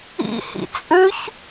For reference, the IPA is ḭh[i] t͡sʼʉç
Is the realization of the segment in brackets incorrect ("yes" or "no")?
yes